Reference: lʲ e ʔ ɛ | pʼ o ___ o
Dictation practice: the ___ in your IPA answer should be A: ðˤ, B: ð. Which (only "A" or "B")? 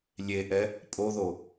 B